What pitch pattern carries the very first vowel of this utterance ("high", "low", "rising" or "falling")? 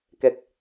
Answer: low